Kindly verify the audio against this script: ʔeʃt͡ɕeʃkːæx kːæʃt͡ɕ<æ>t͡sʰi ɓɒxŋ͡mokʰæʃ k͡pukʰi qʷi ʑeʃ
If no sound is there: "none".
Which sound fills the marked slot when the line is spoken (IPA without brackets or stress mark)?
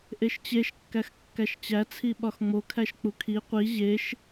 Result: æ